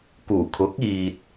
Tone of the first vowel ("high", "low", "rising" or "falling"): low